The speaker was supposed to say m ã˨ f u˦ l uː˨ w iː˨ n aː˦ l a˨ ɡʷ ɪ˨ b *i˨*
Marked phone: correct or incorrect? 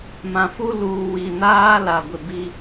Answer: incorrect